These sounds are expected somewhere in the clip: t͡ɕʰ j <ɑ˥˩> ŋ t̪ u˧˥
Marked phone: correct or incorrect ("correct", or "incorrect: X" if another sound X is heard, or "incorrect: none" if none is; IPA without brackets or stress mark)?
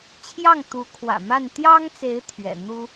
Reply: correct